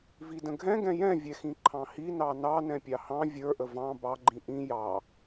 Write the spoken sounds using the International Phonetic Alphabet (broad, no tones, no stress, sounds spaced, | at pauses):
v i d ə̃ ɡʱ ɛ̃ ɡ ɛ̃ j ɛ̃ vʲ ɛ x ĩ ǃʰ ɑ̃ h i n ɑ n ɑ n ɛ̃ pʲ ɑ h ɑ̃ vʲ ə˞ ʔ ə v ɑ̃ b ɑ ɡ͡ǃ ĩ ʔ ĩ j ɑ